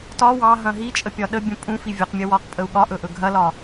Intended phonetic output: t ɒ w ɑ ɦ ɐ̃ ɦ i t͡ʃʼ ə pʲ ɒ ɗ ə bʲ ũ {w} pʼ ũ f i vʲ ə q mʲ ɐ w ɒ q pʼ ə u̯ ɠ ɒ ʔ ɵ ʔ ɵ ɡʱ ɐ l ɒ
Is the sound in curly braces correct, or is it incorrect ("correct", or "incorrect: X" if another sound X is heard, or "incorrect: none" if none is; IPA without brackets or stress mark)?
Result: incorrect: none